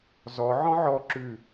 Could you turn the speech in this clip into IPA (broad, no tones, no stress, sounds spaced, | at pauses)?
z ɔ ʕ ɔ̃ ʕ ɔ ǁ ʉ